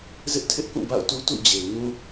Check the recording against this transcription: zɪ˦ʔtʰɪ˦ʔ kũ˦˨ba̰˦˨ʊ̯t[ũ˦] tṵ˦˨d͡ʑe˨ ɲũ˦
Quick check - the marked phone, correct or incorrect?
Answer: incorrect